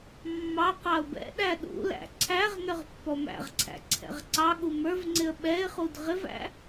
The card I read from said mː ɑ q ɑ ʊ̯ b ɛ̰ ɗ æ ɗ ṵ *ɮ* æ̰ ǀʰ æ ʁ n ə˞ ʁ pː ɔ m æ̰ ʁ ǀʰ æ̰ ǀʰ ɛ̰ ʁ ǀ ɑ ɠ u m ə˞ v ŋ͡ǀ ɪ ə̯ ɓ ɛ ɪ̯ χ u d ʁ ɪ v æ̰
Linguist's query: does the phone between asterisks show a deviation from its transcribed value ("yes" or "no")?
yes